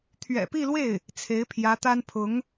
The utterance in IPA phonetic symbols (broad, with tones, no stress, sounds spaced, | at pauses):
t̪ʰ ɥ ɛ̰˨˩ p i˥˧ l w e˥˩ ɪ̯ | t͡sʰ e˧˥ ɪ̯ pʰ j ä˧˥ t̪ a˥ n pʰ ʊ˧˥ ŋ